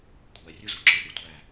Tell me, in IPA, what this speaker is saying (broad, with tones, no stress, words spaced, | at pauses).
kʷʰæ˨ rʲu˦zu˨ǁɯ˧ʔi˨ tʷæ˦˨